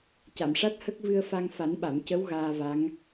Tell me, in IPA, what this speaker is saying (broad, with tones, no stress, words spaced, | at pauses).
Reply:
ca˨˩˨mʂa˦˥t̚ hə˦˥k̚vɨ˧ə̯fa˧ŋ fa˨˩˦nɓa˨˩˨mcə˧˥w ɣaː˧va˧˥ŋ